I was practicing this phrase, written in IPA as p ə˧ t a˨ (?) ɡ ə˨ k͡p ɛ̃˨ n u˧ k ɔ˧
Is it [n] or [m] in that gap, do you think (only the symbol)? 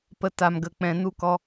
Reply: m